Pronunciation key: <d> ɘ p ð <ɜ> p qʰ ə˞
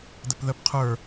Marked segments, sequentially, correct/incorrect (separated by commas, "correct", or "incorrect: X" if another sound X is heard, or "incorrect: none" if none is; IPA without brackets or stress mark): correct, correct